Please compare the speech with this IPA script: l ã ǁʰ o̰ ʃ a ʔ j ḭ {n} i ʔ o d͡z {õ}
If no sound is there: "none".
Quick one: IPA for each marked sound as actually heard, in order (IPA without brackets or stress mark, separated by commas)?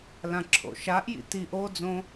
t, õ